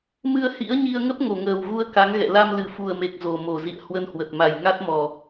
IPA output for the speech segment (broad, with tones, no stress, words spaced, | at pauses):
mɨ˧ə̯hḭ˧˥ə̯ɲi˧ə̯ŋə˦˥p̚ ŋo˧˩ŋəː˨˩wɣu˧ə̯ ka˨˦ŋɣɛ̰˧˨ la˧mlɨ˨˩fu˨˩ə̯me˨˩k̚ zo˨˩mo˧˩zḭ˧˨ə̯ hwə˧nhwə˨˩t̚ma˨˩j ŋa˦˥t̚mɔ˨˩